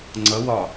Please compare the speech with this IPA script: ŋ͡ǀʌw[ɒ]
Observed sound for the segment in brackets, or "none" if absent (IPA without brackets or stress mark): ɒ